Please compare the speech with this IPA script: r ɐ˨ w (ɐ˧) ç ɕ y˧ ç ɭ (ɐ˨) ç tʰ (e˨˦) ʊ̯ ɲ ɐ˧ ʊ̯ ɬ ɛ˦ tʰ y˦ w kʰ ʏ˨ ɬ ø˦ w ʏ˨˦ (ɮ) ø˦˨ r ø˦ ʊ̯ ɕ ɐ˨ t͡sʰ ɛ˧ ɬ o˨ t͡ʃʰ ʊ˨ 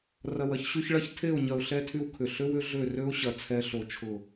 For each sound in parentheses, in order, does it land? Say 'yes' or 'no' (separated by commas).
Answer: yes, no, no, yes